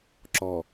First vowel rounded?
yes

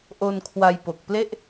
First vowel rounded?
yes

